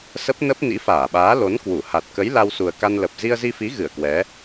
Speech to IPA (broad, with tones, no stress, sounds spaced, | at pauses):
s ə˦˥ p̚ n ə˦˥ p̚ n ḭ˧˥ f aː˧˩ ɓ aː˨˦ l o˨˦ n k w u˧˩ h a˨˩ t̚ k ə˨˦ j l a˧ w s u˨˩ ə̯ k a˧ n l ə˨˩ p̚ z i˧ ə̯ z i˧ f i˨˦ ɣ ɨ˧˩ ə̯ k w ɛ˨˦